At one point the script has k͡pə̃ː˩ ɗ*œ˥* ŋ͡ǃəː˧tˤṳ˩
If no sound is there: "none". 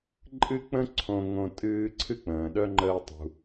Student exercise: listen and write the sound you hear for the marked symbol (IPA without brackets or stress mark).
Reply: œ˥